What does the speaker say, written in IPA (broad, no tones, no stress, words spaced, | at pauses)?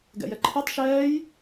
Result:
ɡɛ̰jɛǃʰitˤ ʃɛːj